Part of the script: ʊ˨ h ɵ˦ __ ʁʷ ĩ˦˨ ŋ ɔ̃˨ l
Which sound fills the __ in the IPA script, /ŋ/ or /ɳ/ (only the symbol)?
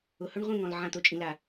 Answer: ɳ